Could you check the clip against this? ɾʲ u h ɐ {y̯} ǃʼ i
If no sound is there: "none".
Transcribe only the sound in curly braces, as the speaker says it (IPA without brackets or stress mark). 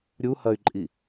y̯